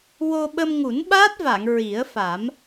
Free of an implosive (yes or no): no